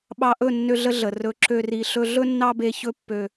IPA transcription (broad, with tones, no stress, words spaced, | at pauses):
ɓɑ˧ʔɵ˦˨nːø˧ ɮə˦ɮə˨ rɵ˨˦ǁø˧ ri˧ɬɵ˦ ɮɵ˦nːɑ˦be˧ çɵ˦pːø˧